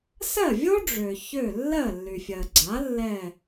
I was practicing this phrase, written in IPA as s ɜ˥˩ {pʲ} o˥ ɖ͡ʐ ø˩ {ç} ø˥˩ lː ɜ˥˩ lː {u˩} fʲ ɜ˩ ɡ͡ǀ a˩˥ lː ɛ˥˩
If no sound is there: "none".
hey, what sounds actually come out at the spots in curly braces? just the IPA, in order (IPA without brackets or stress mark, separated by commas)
vʲ, ç, y˩